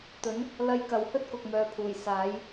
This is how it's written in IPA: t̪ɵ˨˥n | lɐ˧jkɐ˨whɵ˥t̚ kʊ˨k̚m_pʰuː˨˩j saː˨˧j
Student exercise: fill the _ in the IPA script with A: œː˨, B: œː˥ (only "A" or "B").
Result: A